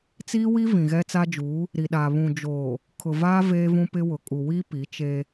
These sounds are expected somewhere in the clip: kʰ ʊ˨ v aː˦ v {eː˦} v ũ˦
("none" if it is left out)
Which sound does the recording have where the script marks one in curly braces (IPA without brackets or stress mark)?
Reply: eː˦